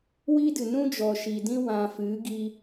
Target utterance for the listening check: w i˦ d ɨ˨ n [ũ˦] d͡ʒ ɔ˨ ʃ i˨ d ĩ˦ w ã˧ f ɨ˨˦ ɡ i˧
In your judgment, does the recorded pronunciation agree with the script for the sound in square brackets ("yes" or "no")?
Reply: yes